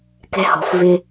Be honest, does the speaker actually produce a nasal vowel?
no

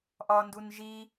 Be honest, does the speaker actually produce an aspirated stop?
no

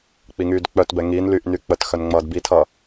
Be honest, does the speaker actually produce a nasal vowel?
no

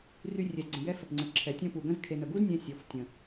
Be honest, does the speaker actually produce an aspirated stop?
yes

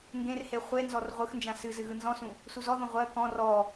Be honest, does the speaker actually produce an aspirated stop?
no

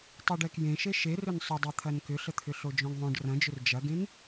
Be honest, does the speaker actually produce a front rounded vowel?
yes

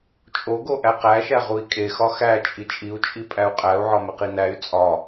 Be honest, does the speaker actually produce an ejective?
yes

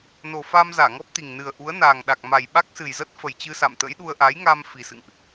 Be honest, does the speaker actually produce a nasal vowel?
no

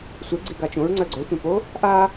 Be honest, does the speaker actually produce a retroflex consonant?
no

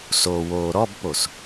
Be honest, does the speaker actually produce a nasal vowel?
no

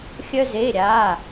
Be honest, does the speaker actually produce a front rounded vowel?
yes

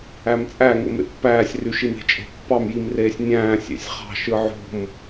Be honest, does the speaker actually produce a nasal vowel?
yes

